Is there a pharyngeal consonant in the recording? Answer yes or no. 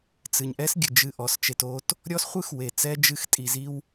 no